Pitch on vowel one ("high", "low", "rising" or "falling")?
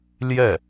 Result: falling